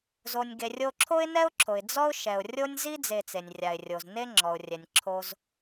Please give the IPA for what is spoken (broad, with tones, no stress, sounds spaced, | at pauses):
z o˩ nʲ ɡ e˩ rʲ o˧ ǁʰ o˥ ɪ̯ n ɛ˥ ʊ̯ ǁʰ o˩ ɪ̯ d͡z ɔ˥ ʊ̯ ʃ ɛ˩ ʊ̯ rʲ o˥ nʲ z i˥ d͡z e˧ t͡s e˩ nʲ rʲ a˩ ɪ̯ rʲ o˩ z n e˥ ŋ͡ǁ ɔ˩ ʊ̯ rʲ ɛ˩ nʲ ǁʰ o˧ z